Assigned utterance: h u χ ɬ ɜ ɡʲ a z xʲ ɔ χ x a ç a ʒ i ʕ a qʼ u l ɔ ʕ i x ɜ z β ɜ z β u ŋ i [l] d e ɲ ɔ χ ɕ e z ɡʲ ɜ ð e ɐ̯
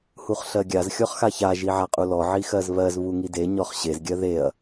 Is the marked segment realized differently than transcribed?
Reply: yes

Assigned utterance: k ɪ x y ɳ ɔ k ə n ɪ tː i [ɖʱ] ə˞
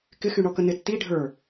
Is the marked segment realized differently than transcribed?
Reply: no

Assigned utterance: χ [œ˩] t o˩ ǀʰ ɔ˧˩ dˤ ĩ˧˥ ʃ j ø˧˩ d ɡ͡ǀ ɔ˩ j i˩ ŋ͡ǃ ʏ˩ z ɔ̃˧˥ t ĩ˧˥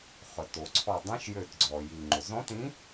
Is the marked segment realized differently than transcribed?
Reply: no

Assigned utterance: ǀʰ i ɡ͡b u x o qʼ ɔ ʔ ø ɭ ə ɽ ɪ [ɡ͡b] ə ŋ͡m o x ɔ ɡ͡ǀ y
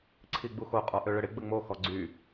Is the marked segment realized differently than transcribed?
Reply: no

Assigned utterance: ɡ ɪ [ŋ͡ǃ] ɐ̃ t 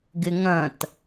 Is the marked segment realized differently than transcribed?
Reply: yes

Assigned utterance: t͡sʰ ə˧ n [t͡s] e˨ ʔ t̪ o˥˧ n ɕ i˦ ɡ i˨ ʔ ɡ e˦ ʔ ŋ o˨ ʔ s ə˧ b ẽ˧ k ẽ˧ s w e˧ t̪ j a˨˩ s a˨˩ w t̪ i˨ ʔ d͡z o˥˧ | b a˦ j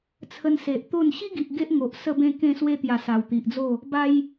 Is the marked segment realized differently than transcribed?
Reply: yes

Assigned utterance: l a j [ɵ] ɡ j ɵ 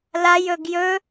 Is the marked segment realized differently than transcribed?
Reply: no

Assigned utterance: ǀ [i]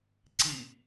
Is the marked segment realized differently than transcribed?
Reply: no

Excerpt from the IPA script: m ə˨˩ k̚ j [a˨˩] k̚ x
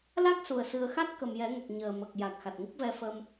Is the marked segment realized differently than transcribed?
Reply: no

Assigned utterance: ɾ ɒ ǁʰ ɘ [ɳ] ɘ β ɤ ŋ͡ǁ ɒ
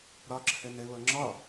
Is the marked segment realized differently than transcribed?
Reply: yes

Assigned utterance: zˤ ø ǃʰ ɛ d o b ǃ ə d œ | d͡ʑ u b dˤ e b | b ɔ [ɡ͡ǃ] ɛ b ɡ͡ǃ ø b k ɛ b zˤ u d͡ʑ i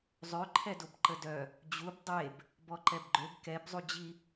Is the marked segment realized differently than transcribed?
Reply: yes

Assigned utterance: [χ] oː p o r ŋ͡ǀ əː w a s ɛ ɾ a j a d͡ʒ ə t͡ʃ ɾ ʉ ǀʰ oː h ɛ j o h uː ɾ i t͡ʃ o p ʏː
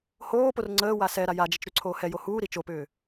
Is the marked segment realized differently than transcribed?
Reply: yes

